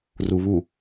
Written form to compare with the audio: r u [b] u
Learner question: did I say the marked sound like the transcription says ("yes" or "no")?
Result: no